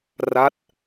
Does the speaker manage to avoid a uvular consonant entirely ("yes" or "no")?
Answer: yes